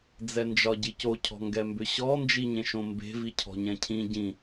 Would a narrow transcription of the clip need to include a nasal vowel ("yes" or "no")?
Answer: yes